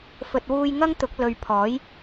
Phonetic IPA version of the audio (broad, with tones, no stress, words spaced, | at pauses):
fɵ˨t̚wuː˧j ŋɐ˥ŋt̪ʊ˨˥k̚ lɵ˨ɥpʰɔː˨˥j